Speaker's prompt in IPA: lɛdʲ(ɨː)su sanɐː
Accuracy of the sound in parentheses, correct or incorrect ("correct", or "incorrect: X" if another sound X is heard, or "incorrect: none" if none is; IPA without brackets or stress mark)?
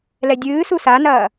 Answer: correct